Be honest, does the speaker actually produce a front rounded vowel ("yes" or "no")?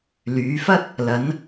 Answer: yes